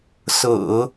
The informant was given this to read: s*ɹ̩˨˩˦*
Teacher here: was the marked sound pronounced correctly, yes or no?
yes